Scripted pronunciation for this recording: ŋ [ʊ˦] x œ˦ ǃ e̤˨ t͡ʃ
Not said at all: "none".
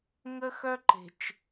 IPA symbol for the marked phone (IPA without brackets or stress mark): ə˦